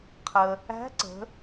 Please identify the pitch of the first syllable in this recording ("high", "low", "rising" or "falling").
low